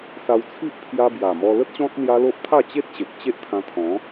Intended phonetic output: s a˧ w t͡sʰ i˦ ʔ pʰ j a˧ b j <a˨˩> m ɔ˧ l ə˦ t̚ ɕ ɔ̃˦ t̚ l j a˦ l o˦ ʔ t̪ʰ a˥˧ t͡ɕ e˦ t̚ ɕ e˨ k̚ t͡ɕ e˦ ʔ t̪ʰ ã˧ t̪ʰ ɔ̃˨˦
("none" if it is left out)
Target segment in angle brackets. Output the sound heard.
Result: a˨˩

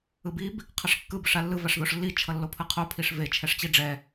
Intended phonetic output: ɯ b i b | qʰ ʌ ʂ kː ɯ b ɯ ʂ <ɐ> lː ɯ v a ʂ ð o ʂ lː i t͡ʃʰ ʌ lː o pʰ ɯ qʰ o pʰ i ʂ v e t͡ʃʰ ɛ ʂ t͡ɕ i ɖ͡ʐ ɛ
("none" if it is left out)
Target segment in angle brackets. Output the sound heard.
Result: a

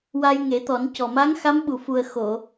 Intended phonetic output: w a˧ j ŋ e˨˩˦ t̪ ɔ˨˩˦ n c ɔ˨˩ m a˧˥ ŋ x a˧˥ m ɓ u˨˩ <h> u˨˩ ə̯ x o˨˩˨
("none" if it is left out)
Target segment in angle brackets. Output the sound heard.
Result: f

